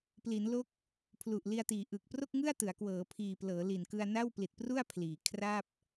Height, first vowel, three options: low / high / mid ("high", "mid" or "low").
high